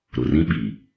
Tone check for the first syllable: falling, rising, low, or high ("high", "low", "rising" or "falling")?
low